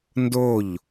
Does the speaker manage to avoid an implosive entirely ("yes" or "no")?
yes